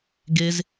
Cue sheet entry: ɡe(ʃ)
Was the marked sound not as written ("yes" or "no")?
yes